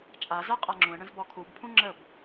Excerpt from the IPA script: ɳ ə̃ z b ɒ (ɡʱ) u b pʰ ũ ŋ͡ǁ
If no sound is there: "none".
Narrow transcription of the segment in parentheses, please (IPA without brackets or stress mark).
kʰ